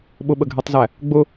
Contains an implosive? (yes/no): yes